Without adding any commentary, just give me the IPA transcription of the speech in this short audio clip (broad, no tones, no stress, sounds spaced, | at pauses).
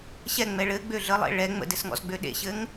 ɕ ɛ ŋ͡m ɛ ɭ ɘ ɡ͡b ø ɮ ə lˠ ḛ ɭ ɛ ŋ͡m ə̰ d ɘ s ŋ ɔ̰ z ɡ͡b ø ɗ ḛ ɕ ɘ ŋ